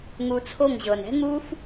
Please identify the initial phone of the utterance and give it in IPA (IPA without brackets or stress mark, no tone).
ŋ